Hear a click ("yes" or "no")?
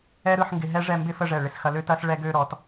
no